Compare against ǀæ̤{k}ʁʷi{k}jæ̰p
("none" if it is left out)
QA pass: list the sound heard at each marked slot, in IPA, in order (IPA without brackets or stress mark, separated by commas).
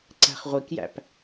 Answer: χ, k